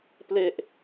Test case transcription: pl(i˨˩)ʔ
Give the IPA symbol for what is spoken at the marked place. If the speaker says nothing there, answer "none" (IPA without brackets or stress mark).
e˨˩